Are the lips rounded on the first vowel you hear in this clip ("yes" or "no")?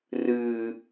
no